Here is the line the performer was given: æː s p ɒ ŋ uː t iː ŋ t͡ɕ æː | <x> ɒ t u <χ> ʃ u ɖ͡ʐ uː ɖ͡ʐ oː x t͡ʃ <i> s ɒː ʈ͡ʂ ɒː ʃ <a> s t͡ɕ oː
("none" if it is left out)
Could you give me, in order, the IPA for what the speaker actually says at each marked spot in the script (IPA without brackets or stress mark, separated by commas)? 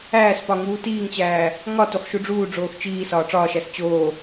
ŋ, χ, iː, æ